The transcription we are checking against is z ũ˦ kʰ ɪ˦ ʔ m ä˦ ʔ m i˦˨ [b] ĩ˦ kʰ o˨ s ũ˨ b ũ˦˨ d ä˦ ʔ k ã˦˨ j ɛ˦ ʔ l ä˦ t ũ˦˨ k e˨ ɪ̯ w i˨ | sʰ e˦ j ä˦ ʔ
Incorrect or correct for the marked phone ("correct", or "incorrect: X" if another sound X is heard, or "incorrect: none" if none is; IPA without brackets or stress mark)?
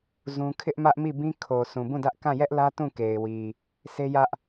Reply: correct